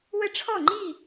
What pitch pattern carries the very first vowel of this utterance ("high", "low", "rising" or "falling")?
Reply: high